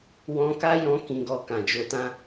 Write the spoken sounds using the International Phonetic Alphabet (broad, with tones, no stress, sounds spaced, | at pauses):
w ɔ̃˧ k a˦ j ɔ̃˦ k ĩ˧ ɡ ɔ˧ k ã˨ d͡ʒ o˧ t ã˦